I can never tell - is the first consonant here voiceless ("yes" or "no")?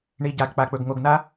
no